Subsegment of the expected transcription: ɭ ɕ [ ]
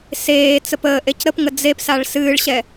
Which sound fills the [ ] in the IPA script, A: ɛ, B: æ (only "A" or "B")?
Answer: A